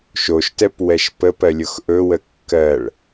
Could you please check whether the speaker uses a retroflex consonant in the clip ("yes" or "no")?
yes